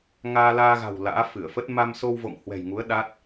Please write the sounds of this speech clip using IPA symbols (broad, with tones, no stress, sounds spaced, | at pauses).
ŋ aː˧ l aː˧ ɣ a̤˨˩ w l a̰ː˧˥ f ɨ˧˩ ə̯ f ə˦˥ t̚ m a˧ m s o˧ w v o̰˧˨ ŋ h w ɛ̤˨˩ j ŋ u˨˦ ə̯ ɗ a˦˥ t̚